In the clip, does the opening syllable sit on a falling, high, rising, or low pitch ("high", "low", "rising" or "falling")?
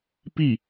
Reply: falling